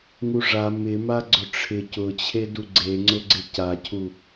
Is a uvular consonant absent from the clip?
yes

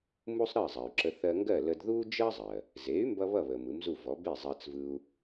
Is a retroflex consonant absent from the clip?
yes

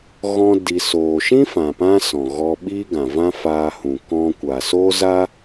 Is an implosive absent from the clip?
no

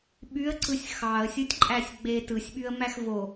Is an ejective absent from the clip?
no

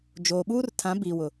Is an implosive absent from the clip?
no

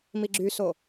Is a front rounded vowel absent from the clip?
no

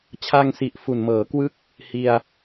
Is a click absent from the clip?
yes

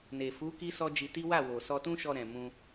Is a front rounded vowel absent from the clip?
yes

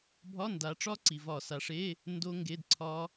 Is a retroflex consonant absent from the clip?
no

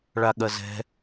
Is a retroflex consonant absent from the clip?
no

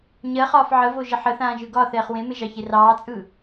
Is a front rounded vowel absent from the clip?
yes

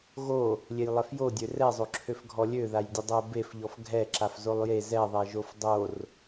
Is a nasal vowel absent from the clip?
yes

